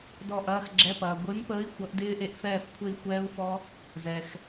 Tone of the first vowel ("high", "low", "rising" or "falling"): falling